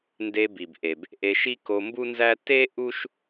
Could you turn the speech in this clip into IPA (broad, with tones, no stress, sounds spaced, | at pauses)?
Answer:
n d e˧ b i˩ b ʔ e˩ b | ʔ e˧ ʃ i˥ k o˧ m b u˥ n z æ˥ t e˥ ʔ u˥ ʃ